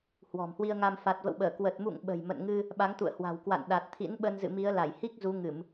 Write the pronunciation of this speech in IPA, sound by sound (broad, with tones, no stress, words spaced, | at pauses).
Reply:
hwɔ̤˨˩mhwi˧ə̯ŋa˧m fa˨˩t̚və̰˧˨wɓəː˧˩ kwə˨˩t̚mṵ˧˨ŋ ɓə̤˨˩jmə̰˧˨nŋɨ˧ | ɓa˨˦ŋt̪ṵ˧˨ə̯hwa̤˨˩wkwa̰˧˨n ɗa˨˩t̚ t̪ʰḭ˧˥nɓə˧n zɨ̰˧˨mi˨˦ə̯la˧˩j hi˦˥k̚ zu˨˦ŋɨ˧˩˨m